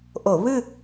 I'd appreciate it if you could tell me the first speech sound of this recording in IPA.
ʔ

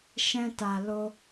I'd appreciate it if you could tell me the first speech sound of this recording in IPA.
ʃ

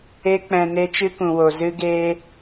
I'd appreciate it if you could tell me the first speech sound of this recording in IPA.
e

